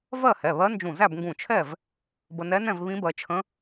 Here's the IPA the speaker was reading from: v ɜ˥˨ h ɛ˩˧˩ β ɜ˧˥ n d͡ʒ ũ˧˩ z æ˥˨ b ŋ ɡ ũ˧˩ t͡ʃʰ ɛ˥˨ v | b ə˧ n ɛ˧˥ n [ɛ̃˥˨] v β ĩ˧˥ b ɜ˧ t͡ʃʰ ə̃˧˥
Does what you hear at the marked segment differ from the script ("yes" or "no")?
no